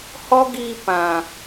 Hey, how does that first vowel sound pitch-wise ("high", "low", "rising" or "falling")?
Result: high